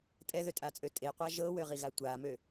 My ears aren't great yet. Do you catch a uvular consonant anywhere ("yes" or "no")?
yes